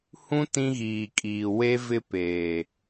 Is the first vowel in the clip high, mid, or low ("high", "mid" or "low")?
high